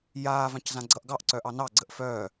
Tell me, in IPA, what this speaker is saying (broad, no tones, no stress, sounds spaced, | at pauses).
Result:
j aː v ã c z ã ɡ͡ǀ ʌ ʔ ɡ ɑ ʔ ǀ œ ʔ ɑ n ɑ ɡ͡ǀ ə ʔ f œː